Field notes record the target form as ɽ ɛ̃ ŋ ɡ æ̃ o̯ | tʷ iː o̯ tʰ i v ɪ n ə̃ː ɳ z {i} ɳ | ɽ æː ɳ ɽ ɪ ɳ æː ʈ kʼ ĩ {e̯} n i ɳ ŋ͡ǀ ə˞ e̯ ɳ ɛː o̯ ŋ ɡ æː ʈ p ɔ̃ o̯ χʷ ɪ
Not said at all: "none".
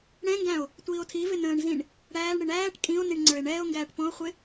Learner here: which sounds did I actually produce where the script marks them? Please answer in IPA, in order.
ĩ, o̯

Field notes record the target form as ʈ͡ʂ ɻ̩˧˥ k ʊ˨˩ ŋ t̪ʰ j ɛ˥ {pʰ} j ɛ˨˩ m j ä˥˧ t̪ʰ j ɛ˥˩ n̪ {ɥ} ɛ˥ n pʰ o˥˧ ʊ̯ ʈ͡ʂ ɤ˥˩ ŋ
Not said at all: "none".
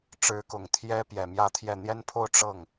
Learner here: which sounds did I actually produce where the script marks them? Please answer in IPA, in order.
p, j

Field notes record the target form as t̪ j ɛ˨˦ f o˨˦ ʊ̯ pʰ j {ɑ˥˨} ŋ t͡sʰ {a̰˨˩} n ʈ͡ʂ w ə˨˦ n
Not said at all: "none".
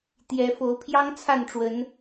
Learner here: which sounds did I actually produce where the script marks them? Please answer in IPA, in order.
ɑ˦, a˥˨

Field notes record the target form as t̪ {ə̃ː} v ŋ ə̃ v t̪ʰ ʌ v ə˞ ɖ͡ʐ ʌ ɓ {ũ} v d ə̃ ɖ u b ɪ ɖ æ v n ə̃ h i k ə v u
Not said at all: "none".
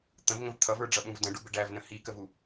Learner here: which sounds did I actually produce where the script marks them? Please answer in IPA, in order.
ə̃, ũ

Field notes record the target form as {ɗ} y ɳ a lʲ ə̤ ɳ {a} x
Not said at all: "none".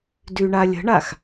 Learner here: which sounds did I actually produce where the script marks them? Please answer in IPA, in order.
d, a

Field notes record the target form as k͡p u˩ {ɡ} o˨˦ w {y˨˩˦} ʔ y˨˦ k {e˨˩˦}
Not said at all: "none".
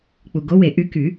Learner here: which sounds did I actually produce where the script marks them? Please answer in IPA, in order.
ɡ, e˨˩˦, y˨˩˦

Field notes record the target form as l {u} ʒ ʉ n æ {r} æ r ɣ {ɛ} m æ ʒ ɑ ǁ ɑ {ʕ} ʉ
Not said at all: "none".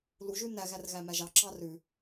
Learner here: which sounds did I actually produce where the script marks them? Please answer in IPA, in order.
u, ɣ, æ, r

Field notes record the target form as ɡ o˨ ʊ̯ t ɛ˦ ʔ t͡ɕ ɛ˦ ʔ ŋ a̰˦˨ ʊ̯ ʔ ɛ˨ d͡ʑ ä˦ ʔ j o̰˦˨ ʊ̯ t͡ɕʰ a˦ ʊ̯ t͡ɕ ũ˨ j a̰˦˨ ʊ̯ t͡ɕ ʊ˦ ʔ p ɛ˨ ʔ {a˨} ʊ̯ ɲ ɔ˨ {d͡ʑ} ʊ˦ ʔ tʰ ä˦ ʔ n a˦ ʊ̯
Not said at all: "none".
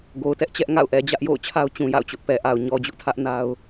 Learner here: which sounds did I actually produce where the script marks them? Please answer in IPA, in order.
a˨, d͡ʑ

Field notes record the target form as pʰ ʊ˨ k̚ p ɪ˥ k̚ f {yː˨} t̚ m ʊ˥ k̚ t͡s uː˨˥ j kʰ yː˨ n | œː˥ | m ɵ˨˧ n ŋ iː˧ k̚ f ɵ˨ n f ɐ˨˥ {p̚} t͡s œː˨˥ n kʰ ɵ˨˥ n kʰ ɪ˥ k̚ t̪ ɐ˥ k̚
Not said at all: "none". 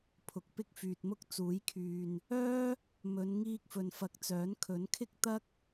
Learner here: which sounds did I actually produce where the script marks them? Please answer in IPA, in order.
yː˨, k̚

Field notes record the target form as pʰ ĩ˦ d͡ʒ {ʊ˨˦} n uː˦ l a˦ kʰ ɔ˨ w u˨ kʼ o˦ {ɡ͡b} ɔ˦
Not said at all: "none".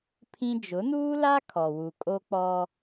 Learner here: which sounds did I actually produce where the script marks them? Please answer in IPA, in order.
ʊ˨˦, k͡p

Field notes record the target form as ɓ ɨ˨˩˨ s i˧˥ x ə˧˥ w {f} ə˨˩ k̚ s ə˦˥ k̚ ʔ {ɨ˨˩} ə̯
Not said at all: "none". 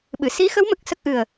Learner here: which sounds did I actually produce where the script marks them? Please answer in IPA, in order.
m, ɨ˨˩

